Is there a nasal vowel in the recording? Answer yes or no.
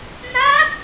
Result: no